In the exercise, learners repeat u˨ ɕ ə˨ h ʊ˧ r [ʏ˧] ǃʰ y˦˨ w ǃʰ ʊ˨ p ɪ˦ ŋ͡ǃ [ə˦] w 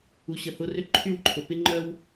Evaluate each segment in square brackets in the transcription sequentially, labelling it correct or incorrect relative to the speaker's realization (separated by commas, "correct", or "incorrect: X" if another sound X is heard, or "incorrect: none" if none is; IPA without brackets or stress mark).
correct, incorrect: œ˦